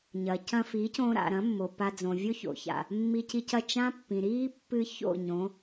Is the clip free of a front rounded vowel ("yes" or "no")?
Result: yes